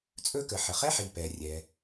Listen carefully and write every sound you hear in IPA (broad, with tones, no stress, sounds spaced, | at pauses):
t͡sʼ ɵ˥ k ə˩ ħ ə˩ χ ɛ˥ ħ i˩ p ɛ˩ rʲ ɛ˩